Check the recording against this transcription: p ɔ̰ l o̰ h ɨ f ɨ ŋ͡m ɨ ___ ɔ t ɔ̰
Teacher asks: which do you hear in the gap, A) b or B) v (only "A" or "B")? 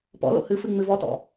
B